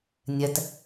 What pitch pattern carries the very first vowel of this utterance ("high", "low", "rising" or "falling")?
low